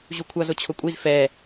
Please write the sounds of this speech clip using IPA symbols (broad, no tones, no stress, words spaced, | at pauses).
ʑukʷʰʌ zʊt͡ɕʰʊkʷʼiz fɛ